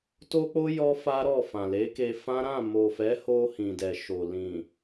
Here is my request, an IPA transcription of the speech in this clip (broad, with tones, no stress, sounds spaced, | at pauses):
t o˦ k͡p o˦ j ɔ˦ f a˦ ɾ ɔ˦˨ f ã˨ l e˨˦ k e˧ f ã˦ ɾ ã˦˨ m o˨ f ɛ˨˦ h o˧ h ĩ˨ d ɛ˨ ʃ o˨ l ĩ˨